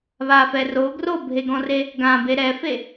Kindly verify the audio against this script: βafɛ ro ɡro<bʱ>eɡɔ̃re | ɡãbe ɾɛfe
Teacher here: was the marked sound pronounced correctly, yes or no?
yes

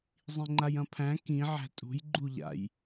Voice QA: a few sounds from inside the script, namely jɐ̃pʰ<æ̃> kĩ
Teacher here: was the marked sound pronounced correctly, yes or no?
yes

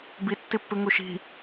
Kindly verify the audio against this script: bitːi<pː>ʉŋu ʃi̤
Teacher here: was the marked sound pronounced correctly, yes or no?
yes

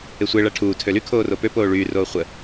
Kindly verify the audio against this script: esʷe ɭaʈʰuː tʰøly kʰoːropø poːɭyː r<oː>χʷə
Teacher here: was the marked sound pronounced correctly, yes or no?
yes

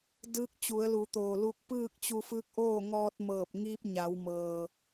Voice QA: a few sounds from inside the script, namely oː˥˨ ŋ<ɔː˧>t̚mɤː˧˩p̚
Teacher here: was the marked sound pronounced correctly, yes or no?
yes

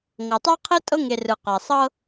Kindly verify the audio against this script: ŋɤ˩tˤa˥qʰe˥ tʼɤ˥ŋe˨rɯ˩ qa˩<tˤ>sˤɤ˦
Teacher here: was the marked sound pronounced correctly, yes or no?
no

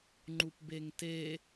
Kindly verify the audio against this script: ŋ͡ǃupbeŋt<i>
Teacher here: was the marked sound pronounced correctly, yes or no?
no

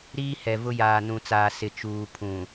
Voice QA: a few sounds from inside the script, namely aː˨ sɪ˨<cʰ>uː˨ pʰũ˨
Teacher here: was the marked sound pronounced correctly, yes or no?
no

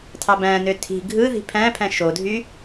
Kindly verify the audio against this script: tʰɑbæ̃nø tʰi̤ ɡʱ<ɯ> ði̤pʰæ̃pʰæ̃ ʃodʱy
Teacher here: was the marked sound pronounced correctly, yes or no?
yes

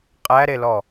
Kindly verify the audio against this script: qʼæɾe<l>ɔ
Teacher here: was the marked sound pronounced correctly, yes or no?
yes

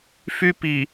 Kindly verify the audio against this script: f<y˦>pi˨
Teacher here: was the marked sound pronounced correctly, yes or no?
yes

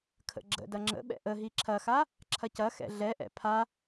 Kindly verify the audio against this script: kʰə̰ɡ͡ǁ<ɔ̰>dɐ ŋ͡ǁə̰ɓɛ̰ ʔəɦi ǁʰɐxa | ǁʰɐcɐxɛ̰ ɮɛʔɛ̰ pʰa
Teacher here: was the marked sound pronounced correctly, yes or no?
no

